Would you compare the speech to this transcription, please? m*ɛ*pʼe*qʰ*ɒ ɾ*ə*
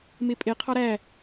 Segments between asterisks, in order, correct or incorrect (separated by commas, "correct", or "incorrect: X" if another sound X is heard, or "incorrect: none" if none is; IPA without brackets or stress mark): incorrect: e, correct, incorrect: æ